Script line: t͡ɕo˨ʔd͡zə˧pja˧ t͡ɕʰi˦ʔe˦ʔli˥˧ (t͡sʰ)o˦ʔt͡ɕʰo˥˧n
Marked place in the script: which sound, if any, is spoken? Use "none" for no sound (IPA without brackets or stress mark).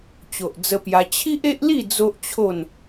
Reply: d͡z